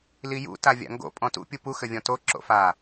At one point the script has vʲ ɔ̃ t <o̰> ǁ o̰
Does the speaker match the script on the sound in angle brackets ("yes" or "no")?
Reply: no